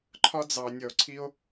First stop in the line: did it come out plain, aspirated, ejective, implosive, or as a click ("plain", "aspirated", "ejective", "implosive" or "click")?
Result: click